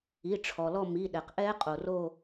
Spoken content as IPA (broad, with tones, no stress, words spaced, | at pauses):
i˩˧˩ʈ͡ʂʰɔ˩lɔ˦˨ mi˩˧˩ɗɛ˩q ʔɛ˦˥qʼo˩ro˦˨